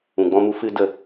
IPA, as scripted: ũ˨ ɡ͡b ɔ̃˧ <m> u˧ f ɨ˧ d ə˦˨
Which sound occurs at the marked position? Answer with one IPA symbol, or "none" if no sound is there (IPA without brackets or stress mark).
m